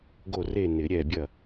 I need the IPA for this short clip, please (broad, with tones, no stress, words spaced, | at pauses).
ɡo˦˨re˦˨ nɪ˨˩˦ɾʲɛ˦˨ bʲɐ˦˨